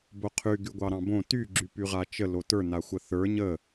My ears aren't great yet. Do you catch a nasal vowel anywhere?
yes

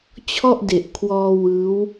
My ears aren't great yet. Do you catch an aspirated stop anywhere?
yes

